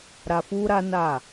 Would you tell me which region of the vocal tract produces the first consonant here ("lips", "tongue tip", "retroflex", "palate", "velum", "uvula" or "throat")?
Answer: tongue tip